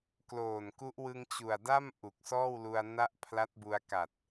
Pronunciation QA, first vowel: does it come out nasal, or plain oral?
oral